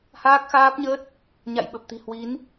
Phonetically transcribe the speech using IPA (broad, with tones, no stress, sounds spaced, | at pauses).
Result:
h aː˦˥ k̚ x aː˦˥ p̚ ɲ əː˦˥ t̚ | ɲ a̰˧˨ j ɓ ə˨˩ p̚ t̪ i̤˨˩ h w i˨˦ n